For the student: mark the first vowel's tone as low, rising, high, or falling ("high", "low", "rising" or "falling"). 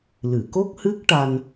low